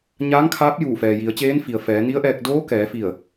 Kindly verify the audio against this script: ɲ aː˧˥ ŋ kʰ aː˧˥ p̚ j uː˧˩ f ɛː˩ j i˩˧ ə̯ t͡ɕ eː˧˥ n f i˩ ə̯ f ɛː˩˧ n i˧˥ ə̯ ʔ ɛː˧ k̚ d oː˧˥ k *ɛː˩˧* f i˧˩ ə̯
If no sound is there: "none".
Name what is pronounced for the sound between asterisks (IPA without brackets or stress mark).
ɛː˩˧